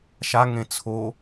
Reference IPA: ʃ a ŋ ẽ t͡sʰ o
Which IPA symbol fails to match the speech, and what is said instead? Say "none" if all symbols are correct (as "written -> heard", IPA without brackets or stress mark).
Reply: none